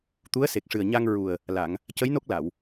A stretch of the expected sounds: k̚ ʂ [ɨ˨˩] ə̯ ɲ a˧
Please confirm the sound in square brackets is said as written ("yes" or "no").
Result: yes